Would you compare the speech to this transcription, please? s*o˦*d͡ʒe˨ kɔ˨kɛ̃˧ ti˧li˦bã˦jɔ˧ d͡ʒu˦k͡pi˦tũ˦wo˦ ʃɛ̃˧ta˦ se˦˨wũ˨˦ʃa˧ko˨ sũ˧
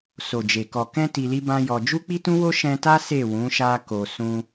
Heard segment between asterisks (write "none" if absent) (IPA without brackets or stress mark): o˨